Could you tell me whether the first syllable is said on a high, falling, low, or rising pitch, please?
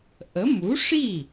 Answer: rising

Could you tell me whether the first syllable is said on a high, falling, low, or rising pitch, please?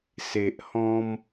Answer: low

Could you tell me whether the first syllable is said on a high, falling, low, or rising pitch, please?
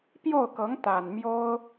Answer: falling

